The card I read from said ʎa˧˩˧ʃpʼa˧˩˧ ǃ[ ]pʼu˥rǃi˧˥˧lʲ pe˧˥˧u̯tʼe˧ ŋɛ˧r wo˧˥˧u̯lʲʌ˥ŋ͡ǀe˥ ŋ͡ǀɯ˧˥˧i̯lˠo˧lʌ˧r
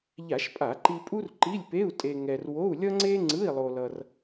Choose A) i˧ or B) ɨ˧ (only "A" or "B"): A